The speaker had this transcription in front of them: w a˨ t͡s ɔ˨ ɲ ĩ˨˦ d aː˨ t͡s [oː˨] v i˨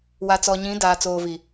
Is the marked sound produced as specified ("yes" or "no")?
yes